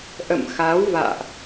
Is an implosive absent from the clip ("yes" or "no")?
yes